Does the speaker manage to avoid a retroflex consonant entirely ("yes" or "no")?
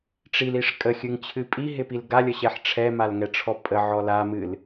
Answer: no